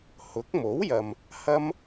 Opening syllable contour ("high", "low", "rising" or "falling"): rising